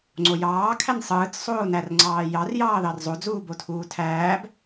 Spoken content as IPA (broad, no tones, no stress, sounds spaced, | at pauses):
ŋ͡ǀ o j ɑː kʰ æ n sˤ ɯː t͡s sˤ oː n æ r ŋ͡ǀ ɑː j ɑ r j ɑː ð ɑ r zˤ o d͡z uː b o tʰ uː tʰ æː b